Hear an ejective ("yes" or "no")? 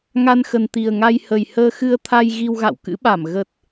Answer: no